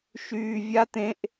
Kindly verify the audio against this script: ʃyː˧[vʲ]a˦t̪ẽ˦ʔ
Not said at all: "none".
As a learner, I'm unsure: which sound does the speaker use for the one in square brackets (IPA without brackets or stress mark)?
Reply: vʲ